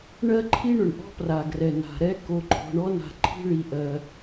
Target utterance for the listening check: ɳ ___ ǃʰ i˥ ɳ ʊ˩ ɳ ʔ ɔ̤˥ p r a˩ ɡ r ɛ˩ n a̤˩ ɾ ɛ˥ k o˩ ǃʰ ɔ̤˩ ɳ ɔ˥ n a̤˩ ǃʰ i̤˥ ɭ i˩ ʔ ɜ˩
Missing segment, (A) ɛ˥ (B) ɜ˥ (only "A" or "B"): B